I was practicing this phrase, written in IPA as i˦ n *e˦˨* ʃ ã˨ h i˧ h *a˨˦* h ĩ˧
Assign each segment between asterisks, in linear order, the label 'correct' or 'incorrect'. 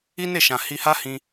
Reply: correct, incorrect: a˦

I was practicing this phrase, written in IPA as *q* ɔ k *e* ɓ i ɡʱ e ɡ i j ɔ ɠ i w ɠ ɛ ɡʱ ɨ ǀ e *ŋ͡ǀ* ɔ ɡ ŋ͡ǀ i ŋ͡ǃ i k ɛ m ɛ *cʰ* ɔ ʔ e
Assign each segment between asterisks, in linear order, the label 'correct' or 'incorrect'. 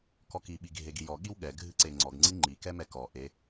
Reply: incorrect: k, incorrect: i, correct, incorrect: k

